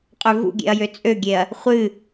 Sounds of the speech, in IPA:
qʼøvṵɡʲḛɐ̯jø t͡sʼøɡʲeɐ̯ | χʷɨ

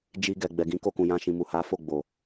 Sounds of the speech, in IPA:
d͡ʒi˧ɡɛ˨ ɡ͡bɛ˨ɡĩ˨˦ko˧kũ˨ jã˧ ʃĩ˨mu˨ha˨˦ fo˦˨ɡ͡bo˨

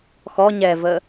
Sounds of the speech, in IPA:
xɔ ɲɛvə

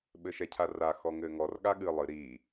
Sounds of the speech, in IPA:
ɓɘʃɛcʰara xɔŋɘːŋɔr ɠaɠɨ lˠɨ ɾiː

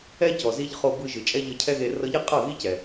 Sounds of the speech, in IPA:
ɛ˦cɔ˨zi˧ʎ χo˧bɯ˧ʒɯ˨t͡ʃʼɛ˦ ʎɤ˧cʰɛ˦ɣe˧ rɤ˧ʎe˦qʼɤ˦˨ɣi˦ cɛ˨

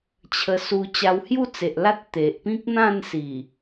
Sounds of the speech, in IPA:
t͡ɕʰə˧su˧ t͡ɕa˧whju˥˧t͡se˨ʔ la˦t̚ t̪e˨ʔpĩ˦k̚n̪ã˥˧n si˨˩

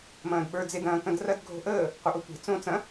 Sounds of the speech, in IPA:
mɐ̃ːdɓə˞ d͡zed ɐ̃ːkɐ̃drɐd ɡʱo̤ʔəː | qʷɐʔotʷe̤ t͡sõ t͡sɐ̃

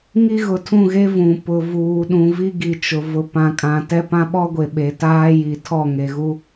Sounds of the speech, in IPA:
ŋi˦ɣʊ˨tʰũ˦˨ɣe˦ vũ˨ pʊ˨vuː˨ ɗũ˨vi˦ɡi˨ t͡ʃʊ˨ vʊ˨pã˨kʼã˨ tɛ˦pã˦ɓɔ˦ɡʷe˨ ɓe˨taː˦ji˨tʰɔ˦˨ ŋe˨ɣu˦

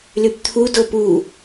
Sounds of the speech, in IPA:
lypt̪ʰu dopu

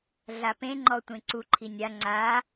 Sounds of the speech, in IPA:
ɮapẽŋ͡ǃɔ tʷẽǀuǃʰi nʲa ŋ͡ǀa

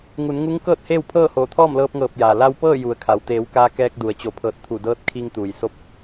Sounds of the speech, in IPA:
ŋu˩˧nŋu˧˥ŋkɤː˥˨t̚ heː˥˨wpʰɤː˥˨ hoː˧˩t̪ʰɔː˥˨m lɤː˧p̚ŋɤː˧˩p̚jaː˩ la˧wpɤː˥˨ ju˩˧ə̯kʰa˩w t̪eː˩˧w kaː˧kɛː˧k̚du˩ə̯ t͡ɕo˩˧pʰɤː˧˩t̚t̪ʰu˧˩dɤː˧˥t̚ kʰi˧ŋt̪uː˩jso˧˥p̚

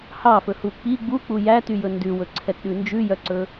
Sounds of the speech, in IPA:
hɑfɵhu k͡pi ɡ͡buk͡pu jætyjɵ ndʉwɵǀʰɛtɗʉ nd͡ʒʉjœǀɵ

